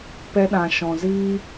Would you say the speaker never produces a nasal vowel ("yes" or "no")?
no